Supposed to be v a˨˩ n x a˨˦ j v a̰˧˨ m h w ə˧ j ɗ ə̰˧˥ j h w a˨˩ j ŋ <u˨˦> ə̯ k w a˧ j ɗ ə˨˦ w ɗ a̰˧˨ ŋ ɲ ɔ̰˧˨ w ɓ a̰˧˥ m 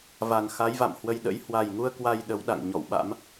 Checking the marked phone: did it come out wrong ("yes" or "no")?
yes